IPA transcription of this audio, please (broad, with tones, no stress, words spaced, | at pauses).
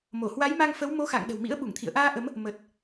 mo˧˩hwa˨˦jma˧ŋfə˨˦w mo˨˦xa̰˧˨ŋ ɗə̤˨˩wmḭ˧˥ə̯ ɓu˧˩ŋt̪ʰḭ˧˨ə̯ʔaː˧ ʔə˨˦m | mə˨˩t̚